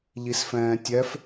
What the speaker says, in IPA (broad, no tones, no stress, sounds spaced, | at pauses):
ʎ i s f ɛ̃ː tʲ ɛ f